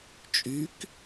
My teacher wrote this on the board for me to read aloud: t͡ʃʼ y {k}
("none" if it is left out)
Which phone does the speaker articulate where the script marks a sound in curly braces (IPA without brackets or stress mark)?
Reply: k